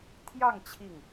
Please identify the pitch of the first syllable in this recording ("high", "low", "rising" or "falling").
falling